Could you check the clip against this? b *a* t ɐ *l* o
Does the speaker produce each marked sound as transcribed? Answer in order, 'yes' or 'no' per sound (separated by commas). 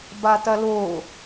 yes, yes